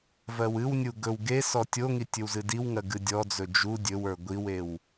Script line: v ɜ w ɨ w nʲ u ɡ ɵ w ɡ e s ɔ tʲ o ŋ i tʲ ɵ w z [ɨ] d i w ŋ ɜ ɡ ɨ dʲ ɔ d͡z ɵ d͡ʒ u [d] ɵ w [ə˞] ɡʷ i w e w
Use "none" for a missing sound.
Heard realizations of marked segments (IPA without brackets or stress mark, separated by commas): ɨ, dʲ, ə˞